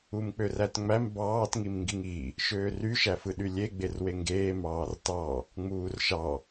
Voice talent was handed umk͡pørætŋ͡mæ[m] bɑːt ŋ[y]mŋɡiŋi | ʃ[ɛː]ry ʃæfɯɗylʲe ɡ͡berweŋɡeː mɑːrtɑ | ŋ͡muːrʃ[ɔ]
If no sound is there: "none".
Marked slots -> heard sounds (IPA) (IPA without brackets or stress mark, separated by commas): m, i, øː, ɑ